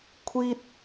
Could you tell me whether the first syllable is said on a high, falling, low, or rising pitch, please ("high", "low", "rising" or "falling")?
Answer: high